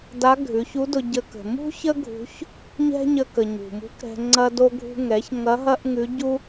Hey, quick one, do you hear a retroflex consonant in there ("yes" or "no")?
no